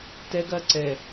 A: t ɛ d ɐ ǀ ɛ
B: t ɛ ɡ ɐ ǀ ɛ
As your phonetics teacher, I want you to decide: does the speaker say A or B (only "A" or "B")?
B